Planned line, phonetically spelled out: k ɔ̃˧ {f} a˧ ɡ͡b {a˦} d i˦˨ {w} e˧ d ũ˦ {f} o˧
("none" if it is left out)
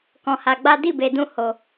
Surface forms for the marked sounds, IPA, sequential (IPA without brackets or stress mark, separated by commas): h, a˦, b, h